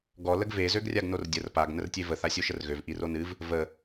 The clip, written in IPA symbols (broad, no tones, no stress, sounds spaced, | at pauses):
ɡ ɔ l ə ɡ v e z ø ɡ rʲ a ɡ n o r dʲ ə r p a ɡ n ə r tʲ e v ə θ a sʲ o ʃ ə r ɣ ø v ʔ i r o n ɨ v | v ə